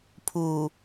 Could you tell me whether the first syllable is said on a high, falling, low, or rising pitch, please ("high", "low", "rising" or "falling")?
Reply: low